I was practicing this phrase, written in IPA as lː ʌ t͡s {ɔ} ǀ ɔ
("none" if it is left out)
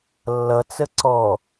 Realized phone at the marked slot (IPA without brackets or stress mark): ə